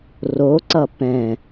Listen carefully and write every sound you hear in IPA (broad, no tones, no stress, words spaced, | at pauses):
roǀʌ pɛ̃